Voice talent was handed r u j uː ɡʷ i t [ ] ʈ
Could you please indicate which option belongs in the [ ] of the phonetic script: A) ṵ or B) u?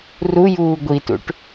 A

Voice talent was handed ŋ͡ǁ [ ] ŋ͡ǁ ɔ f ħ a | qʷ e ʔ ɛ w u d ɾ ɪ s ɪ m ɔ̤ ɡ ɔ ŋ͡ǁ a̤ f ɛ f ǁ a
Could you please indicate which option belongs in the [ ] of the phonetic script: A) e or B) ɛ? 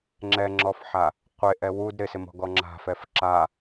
B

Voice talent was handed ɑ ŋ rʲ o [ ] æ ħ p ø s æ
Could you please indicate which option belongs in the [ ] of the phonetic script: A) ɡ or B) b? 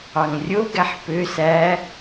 A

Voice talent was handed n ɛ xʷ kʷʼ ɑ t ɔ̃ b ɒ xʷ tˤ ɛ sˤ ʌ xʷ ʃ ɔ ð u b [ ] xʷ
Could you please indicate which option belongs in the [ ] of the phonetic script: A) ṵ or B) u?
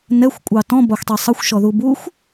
B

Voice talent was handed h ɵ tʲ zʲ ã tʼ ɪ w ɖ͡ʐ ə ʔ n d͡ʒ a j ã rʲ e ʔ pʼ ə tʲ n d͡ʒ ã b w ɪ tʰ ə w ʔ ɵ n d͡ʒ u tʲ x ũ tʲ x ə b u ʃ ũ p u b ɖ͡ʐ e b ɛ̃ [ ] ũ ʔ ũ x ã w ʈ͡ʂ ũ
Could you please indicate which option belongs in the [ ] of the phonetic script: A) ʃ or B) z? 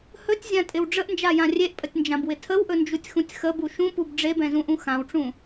B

